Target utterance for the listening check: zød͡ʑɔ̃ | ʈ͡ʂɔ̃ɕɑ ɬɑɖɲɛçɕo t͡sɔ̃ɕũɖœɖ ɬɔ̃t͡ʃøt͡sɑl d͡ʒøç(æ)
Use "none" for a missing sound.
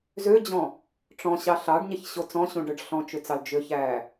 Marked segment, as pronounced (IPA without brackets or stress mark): æ